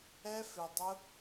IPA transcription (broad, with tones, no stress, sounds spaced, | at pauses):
ɛ˦ f ɪ˧ dˤ ʊ˦